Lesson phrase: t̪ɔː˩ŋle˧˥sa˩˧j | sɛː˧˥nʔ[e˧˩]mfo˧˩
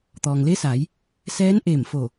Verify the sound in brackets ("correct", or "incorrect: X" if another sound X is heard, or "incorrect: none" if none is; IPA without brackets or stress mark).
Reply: correct